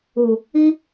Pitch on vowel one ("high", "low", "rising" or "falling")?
low